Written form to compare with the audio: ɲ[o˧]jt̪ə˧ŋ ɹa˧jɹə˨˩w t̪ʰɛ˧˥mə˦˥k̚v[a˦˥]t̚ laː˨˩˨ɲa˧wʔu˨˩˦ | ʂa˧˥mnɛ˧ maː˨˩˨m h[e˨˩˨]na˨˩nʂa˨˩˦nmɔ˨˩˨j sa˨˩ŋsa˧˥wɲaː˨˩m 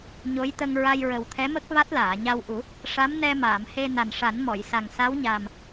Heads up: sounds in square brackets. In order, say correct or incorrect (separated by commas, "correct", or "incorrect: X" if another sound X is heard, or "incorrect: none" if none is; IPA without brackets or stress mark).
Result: incorrect: o˧˥, correct, incorrect: e˧